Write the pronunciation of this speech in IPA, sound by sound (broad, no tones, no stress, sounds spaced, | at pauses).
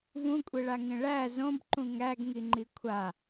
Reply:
v ũ kʷʼ e ɭ a ŋ ẽ ɭ æ z õ b ǃ ũ ŋ æ ɡ ŋ i ŋ͡ǃ i kʷʰ a